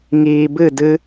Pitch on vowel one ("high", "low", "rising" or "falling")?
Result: low